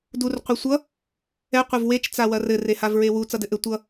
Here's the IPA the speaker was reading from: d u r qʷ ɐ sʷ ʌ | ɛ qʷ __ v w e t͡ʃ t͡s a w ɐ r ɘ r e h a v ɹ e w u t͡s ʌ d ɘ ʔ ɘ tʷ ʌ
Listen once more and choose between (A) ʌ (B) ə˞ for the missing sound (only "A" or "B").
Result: A